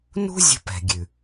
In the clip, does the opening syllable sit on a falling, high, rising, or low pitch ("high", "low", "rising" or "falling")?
high